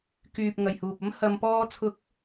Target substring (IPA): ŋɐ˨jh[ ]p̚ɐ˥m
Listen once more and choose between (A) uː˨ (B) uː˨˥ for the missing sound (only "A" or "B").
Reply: A